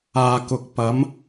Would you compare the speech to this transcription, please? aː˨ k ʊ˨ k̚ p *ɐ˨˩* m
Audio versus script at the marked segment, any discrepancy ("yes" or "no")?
yes